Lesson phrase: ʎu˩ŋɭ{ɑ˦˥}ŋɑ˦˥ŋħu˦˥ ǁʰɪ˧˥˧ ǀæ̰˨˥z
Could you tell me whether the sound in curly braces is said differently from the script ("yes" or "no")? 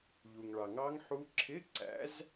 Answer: yes